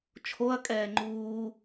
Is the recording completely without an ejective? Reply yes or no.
no